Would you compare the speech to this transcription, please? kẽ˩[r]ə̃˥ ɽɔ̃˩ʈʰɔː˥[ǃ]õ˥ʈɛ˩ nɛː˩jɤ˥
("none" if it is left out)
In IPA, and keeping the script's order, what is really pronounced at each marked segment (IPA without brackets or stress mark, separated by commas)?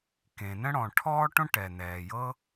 n, ʈ